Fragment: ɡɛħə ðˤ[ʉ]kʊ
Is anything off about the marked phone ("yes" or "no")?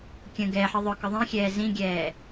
yes